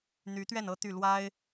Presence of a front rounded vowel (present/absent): present